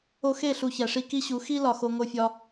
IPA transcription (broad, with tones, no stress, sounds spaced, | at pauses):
o˧ x e˦˨ ɬ u˨ ç æ˨ ʂ i˦ k i˦ ɕ u˨˦ x i˦ l ɒ˨ x o˧ ŋ o˧ fʲ ɒ˧